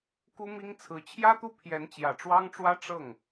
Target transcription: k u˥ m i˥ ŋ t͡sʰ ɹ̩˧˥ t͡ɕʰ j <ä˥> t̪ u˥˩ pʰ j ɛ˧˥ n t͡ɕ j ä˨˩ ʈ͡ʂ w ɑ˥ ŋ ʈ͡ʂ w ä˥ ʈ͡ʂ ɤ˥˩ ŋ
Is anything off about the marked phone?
no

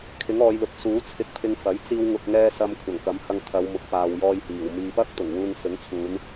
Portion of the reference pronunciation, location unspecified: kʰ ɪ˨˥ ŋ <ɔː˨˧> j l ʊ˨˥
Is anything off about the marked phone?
no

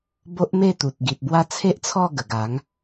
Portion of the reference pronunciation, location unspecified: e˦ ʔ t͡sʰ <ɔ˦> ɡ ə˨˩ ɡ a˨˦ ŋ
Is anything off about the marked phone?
yes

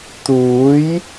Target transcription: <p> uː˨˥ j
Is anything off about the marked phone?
yes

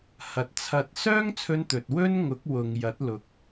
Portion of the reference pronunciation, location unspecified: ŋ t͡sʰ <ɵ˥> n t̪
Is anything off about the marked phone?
yes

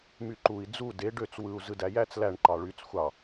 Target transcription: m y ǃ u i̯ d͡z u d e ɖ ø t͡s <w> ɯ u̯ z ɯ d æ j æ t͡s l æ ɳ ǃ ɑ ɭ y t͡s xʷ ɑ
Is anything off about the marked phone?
no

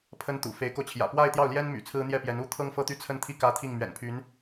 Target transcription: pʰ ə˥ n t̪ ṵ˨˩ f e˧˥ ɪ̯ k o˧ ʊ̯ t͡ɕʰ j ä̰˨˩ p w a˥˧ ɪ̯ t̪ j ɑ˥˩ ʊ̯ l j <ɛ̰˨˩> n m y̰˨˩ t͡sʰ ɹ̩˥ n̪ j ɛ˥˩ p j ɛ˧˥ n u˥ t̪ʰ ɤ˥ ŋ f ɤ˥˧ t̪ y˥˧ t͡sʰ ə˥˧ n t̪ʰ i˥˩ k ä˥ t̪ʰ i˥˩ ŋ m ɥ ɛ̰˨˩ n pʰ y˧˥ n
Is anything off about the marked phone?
yes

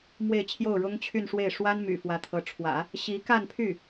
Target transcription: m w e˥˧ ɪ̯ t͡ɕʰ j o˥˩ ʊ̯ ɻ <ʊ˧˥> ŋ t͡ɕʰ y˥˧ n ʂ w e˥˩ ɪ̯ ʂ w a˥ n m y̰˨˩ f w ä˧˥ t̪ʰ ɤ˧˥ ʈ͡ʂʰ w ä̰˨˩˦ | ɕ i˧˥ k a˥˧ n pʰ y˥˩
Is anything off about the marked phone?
yes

